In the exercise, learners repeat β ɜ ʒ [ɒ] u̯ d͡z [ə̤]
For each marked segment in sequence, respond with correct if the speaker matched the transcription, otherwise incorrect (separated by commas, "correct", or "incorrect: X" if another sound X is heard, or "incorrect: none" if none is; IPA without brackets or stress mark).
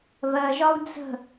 correct, correct